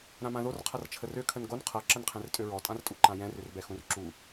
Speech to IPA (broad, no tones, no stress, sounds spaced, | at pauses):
ɾ ã m ã ð o r qʰ ʌ r t͡ʃʰ ə r ø kʰ ə n ɡ o n qʰ ʌ ǁ ə n qʰ ɛ̃ r tʼ ø ɹ ɔ tʼ ã r tʼ u ǃ ã j ɛ̃ r ʏ r b ɛ x ũ r ǁ u